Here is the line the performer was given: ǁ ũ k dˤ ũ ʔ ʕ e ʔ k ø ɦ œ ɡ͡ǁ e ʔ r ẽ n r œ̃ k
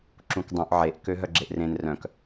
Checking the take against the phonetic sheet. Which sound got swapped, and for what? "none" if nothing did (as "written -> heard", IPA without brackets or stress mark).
none